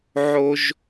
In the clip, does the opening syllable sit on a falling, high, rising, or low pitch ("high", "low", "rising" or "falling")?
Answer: high